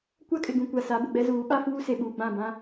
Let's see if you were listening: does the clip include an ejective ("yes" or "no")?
yes